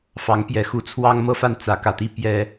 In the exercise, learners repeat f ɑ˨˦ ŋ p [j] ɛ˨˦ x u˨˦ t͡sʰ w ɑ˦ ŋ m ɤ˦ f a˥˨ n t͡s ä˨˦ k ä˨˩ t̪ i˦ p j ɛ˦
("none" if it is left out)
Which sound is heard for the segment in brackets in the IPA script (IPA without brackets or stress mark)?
j